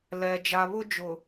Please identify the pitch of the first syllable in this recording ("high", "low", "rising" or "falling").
low